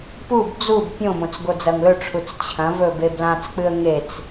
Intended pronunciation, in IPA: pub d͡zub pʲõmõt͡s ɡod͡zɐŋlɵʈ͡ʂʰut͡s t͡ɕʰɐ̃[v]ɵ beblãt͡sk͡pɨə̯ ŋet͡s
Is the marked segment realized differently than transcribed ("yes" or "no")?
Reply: no